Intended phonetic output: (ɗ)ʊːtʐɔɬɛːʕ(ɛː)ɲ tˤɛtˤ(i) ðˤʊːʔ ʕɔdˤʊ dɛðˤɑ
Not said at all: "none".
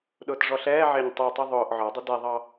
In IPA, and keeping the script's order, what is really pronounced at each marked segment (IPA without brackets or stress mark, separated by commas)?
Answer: ɗ, ɪː, i